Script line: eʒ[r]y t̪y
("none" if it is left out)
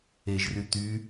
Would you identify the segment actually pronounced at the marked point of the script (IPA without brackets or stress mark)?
r